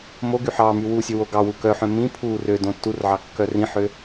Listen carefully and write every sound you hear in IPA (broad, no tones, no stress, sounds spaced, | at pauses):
m o ɡ y ħ ɑ m y w u sʲ ø w o ɡ ɑ w u k œ ħ œ̃ m ĩ pʰ u r ø d õ tː u r ʕ ɑ kː œ r ĩ ħ ø